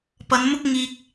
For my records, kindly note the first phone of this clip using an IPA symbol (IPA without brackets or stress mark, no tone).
p